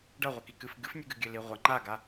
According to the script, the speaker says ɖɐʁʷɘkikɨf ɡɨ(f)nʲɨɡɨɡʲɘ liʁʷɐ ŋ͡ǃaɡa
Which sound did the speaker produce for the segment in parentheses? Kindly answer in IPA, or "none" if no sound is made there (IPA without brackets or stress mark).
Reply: f